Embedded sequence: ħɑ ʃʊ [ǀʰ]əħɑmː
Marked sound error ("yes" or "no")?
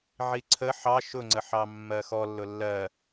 yes